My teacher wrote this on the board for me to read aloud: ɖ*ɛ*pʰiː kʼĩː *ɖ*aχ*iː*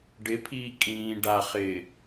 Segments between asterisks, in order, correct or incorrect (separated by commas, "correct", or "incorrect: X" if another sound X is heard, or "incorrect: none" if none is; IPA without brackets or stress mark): incorrect: ɪ, correct, incorrect: ɪː